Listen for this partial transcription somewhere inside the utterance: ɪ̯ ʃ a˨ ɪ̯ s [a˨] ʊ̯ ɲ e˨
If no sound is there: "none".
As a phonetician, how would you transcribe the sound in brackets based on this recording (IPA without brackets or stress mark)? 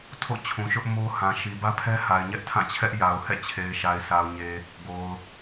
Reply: a˨